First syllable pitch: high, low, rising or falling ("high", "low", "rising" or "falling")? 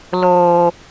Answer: low